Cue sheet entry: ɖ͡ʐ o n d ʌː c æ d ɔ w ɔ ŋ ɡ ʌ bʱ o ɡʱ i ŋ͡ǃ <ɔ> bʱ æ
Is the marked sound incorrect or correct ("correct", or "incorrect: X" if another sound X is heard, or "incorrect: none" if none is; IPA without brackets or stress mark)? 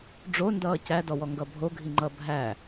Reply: incorrect: ʌ